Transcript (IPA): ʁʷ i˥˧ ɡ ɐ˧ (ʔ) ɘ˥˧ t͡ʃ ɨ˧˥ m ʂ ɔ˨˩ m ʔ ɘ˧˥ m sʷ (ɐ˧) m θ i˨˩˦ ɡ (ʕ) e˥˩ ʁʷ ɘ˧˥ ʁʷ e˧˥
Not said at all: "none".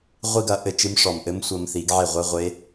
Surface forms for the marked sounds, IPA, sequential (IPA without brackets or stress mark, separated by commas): ʔ, ɐ˧, ʕ